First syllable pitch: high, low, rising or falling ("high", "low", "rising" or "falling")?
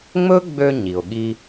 high